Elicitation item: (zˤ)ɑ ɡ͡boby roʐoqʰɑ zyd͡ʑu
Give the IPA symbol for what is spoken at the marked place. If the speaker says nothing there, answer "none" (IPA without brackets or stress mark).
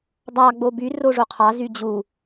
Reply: dˤ